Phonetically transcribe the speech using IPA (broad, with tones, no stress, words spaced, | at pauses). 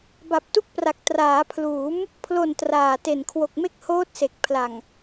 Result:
ba˨˩p̚tu˥˩k̚pra˨˩k̚ traː˩˦pʰluː˩˦m | pʰlo˨˩n traː˨˩te˨˩n kʰwo˨˩k̚me˥˩k̚ hoː˦˥t̚se˨˩k̚pʰla˨˩ŋ